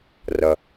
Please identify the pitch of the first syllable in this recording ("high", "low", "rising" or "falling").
low